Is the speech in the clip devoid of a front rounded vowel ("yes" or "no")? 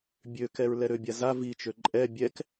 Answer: no